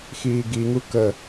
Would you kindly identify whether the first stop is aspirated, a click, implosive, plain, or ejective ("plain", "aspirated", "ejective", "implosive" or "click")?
plain